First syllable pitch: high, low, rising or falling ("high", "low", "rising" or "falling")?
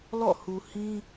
falling